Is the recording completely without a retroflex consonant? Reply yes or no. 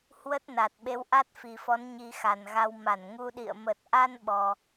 yes